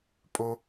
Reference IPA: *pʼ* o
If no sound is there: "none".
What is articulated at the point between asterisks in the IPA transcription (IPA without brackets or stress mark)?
pʼ